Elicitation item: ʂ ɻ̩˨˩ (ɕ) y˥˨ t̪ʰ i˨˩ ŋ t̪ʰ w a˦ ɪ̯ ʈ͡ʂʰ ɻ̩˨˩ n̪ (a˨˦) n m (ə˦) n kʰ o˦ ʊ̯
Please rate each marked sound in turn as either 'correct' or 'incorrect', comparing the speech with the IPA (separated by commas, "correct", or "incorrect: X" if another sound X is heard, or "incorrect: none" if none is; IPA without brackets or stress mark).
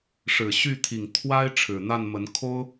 correct, incorrect: a˥˨, incorrect: ə˨˦